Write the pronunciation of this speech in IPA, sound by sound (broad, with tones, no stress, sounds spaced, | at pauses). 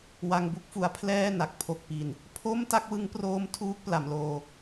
w a˧ ŋ b u˥˩ k̚ f u˧ a̯ pʰ l ɛː˥˩ n a˨˩ k̚ pʰ o˨˩ k̚ p i˨˩ n | pʰ o˥˩ m t a˥˩ k̚ w ɯ˦˥ ŋ p r oː˦˥ m tʰ uː˦˥ k̚ p l a˩˦ m l oː˧